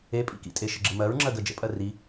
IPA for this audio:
epʼḭkḭtʼe ʃəɡ͡ǁɘmɜɹŋ͡ǁɜ ɡɜd͡ʒə̰pʼɜ ri

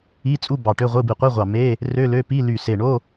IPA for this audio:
i˧˥˧t͡sʼu˧˥˧ bɑ˧˩ʈø˧˥˧ʁʷɯ˧˥˧ bi˧˩qʷi˧˥˧ʁʷɑ˧˩me˧˥˧ | rø˧˥˧lø˧˥˧ pi˧˥˧ly˧˩ se˧˩ɳo˧˥˧

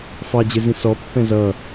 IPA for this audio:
fɑd͡ʑɪzĩ sɔpːɛ̃ zʌ

